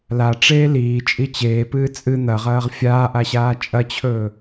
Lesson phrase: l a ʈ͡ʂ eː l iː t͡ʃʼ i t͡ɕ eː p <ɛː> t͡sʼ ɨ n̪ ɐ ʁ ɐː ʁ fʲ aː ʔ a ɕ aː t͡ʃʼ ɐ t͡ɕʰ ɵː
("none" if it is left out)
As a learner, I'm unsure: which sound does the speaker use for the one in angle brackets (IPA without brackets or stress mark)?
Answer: ɨː